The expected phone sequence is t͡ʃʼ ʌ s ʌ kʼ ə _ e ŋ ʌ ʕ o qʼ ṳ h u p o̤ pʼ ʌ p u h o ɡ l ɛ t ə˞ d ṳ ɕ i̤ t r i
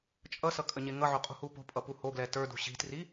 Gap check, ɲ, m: ɲ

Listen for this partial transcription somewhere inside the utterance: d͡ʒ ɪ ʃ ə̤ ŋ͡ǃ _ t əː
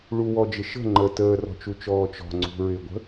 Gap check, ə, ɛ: ə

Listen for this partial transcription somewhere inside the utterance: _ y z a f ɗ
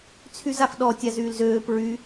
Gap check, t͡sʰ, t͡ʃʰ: t͡sʰ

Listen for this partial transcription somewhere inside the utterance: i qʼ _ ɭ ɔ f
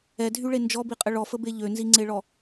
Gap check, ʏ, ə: ə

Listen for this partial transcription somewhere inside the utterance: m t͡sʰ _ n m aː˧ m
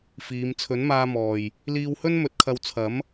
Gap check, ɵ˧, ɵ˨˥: ɵ˨˥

